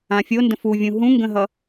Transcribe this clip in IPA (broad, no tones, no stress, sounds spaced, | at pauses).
ã fʲ o n d ə̃ f u vʲ ũ ɦ ũ ŋ ɡ ə̃ ɦ ʌ